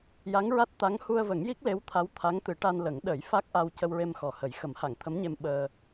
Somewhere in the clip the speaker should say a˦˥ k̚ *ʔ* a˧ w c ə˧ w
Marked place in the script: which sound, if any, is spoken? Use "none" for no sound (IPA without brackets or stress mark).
ʔ